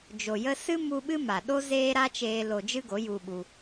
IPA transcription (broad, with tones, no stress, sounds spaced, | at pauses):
d͡ʒ o˨ j ə˧ s ɨ˦ m u˧ ɓ ɨ˦ m a˨ ɗ o˦ z eː˦ ɾ a˦ t͡ʃ eː˧ l o˧ d͡ʒ ɨ˦ ɡ o˨˦ j u˧ ɓ u˧